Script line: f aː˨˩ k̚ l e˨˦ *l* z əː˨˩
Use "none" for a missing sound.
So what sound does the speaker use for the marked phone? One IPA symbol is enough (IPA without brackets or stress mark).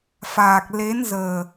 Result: n